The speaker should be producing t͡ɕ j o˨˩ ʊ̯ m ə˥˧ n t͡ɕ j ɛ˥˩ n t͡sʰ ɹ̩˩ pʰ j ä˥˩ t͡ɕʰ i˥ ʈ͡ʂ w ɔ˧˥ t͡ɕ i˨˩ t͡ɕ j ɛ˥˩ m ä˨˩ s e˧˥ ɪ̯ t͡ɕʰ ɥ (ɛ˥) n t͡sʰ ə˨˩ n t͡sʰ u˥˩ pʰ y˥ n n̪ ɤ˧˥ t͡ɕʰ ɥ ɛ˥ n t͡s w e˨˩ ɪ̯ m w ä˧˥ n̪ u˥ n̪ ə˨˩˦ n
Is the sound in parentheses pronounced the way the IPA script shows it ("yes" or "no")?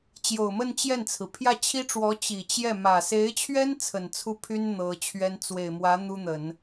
yes